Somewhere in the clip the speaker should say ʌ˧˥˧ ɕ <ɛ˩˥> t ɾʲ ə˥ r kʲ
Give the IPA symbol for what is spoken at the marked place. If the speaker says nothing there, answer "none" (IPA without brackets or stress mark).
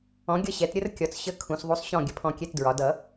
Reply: ɛ˩˥